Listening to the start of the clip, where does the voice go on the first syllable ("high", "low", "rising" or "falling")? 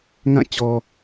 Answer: falling